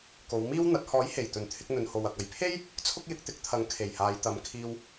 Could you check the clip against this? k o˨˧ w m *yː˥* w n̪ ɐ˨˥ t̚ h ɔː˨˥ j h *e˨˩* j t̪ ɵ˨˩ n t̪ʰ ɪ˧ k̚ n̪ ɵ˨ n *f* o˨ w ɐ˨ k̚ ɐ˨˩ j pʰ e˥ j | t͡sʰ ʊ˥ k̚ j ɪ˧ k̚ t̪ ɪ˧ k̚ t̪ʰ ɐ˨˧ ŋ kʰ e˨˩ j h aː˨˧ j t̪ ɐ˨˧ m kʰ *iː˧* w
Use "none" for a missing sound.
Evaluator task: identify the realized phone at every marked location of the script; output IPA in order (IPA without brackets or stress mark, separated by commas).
iː˥, e˨˩, h, iː˧